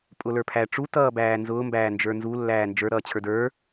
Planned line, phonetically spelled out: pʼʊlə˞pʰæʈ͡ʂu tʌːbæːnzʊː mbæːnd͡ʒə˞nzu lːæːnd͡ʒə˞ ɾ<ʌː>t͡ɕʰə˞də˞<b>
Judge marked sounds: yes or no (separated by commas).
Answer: yes, no